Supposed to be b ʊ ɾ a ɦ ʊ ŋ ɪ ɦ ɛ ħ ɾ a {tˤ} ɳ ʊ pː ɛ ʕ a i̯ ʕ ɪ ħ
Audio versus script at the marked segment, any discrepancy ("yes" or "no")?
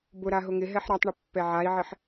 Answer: no